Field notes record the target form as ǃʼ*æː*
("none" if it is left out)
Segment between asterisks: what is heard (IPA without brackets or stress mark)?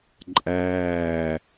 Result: æː